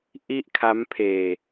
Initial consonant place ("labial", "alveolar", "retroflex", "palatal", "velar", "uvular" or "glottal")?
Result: glottal